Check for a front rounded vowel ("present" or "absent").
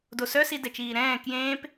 present